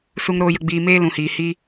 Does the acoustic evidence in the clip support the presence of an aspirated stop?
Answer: no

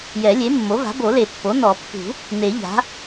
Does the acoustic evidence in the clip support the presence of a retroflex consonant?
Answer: no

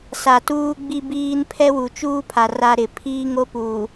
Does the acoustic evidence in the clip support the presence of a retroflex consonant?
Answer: no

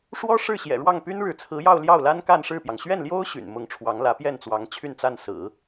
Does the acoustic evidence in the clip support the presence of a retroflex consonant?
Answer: yes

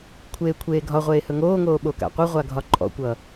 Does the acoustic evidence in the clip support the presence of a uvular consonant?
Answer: yes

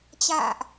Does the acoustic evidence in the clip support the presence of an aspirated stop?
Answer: no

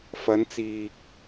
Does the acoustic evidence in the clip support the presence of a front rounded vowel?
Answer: no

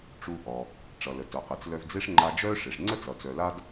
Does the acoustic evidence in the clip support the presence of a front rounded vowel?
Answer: yes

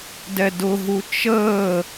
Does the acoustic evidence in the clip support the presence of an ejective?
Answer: no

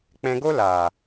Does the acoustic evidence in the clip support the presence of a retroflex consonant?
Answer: no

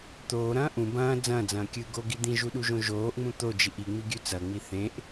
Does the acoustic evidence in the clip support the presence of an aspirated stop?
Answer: no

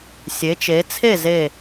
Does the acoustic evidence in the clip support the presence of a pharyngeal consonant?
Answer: no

